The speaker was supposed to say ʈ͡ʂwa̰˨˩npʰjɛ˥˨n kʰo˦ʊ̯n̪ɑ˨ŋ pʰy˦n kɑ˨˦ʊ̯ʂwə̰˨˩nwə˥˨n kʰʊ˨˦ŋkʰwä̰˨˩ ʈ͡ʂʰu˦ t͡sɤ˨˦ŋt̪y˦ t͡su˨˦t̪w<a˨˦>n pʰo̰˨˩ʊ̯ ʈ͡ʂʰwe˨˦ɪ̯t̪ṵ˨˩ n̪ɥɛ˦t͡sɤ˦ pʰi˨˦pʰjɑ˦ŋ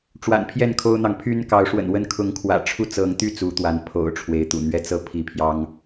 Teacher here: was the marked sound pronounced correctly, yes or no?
yes